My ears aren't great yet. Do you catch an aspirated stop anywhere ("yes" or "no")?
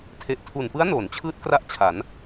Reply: yes